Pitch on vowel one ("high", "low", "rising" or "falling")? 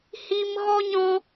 high